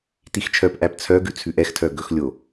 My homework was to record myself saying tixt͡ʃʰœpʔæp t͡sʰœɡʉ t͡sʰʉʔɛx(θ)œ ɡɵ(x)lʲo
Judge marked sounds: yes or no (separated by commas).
no, yes